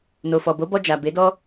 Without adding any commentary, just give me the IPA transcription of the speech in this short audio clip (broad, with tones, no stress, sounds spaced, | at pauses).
n o˨ f ɔ˨ b o˨˦ b ɔ˧ d͡ʒ a˨ b e˨˦ d ɔ˦